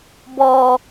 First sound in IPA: b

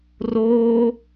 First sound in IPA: r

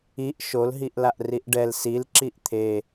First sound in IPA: i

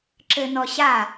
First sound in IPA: ǁ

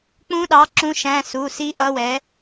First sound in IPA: k͡p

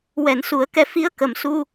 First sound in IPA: w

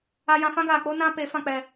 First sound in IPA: a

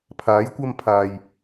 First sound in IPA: pʰ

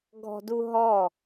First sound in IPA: ɡʱ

